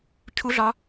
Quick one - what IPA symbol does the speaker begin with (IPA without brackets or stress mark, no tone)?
cʰ